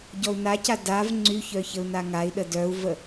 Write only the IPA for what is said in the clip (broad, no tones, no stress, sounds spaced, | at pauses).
ɟ ɔ u̯ n a c a d a v ŋ͡ǀ y ç œ ç ə u̯ n a ŋ a i̯ ɗ ə d œ u̯ v ə